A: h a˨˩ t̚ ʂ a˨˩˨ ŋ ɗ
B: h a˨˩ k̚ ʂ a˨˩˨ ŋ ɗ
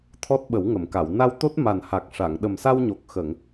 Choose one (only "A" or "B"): B